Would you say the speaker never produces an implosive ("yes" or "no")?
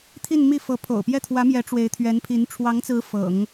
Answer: yes